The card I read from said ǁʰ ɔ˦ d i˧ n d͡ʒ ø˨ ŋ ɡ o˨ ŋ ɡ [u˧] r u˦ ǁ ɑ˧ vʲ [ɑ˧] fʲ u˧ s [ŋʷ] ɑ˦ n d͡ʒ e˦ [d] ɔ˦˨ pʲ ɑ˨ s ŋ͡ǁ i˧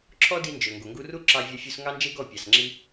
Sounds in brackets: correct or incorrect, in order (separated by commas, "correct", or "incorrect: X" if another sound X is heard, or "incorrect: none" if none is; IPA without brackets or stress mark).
correct, correct, incorrect: ŋ, incorrect: ɡ